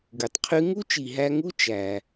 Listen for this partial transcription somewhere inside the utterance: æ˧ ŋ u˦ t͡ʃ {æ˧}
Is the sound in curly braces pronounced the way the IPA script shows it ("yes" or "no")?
yes